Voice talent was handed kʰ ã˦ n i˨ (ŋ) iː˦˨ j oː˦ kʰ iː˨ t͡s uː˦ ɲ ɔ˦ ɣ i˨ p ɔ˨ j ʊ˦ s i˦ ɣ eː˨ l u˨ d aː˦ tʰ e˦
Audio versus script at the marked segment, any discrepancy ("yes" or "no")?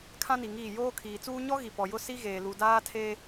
no